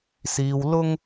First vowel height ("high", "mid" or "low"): high